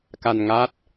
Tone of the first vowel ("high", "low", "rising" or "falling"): low